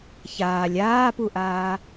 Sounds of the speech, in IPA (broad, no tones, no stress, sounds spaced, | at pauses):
ç aː lʲ aː p u ʔ aː